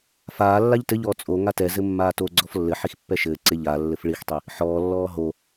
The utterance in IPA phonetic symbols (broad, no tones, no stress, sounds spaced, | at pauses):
f aː lː a ʎ t ɘ ʎ ɔː t͡sʼ o ŋ a t ɛ z ɘ mː aː t o ɡ͡ǀ ɔ f lː ɘ ħ i x pː ɛ ʃ ɘː ǀ e ʎ a lː ɘ f ɭ i x tˤ i | ħ ɔː lː ɔː ɦ o